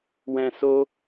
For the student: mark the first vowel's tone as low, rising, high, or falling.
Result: low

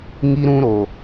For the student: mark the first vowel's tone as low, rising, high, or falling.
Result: high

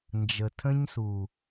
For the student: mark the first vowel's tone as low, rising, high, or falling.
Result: low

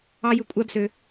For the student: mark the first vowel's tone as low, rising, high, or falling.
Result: high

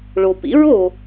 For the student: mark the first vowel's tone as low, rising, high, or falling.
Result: low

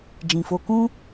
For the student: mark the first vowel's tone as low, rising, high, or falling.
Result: low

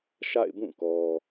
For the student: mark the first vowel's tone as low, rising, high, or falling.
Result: falling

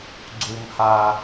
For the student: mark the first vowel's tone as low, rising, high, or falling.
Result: high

